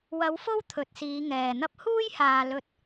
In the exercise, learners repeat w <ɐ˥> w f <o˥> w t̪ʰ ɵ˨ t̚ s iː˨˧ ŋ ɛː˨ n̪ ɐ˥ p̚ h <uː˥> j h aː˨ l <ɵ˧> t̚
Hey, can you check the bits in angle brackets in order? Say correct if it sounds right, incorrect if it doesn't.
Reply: incorrect: ɐ˨˧, correct, correct, correct

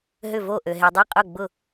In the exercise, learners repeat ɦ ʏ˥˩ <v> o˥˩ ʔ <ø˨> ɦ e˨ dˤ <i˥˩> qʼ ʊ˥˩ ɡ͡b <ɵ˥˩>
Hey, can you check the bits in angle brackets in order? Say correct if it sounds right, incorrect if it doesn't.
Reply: correct, correct, correct, incorrect: ʊ˥˩

